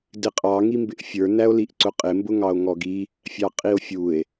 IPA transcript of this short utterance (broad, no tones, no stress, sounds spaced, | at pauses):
d ɪ qʼ ɑ ŋ i m b ɪ ʔ fʲ ə˞ n æ o̯ l i ʔ ǀ ʊ qʼ ɪ m b ʊ ŋ ɑ o̯ ŋ ɔ ɡ i | fʲ ɑ qʼ i o̯ fʲ u e̯